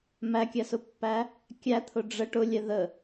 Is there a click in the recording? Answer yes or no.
no